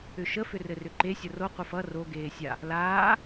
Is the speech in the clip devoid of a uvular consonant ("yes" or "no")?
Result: no